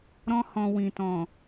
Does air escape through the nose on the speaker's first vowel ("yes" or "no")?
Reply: yes